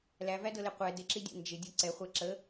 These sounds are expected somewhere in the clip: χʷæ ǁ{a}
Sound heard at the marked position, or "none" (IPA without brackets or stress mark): ə